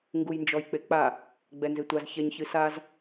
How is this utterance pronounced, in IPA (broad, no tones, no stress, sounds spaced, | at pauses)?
ŋ ɡ u j n d͡ʒ ɔ j k͡p e k͡p a | ɡ͡b ɛ n z e tʷ a z ç ɛ ɲ ç ɨ s a z